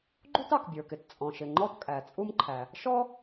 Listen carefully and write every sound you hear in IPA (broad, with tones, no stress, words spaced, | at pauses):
ɡ͡ǃu˥tɑ˩kbʲə˞˩kɪ˩t t͡sʼɔ̃˩ʃɪ˩ ŋ͡ǃɔ˥tkʼæ˩t͡sʼu˥mǃʰæ˩ | ʃɔ˥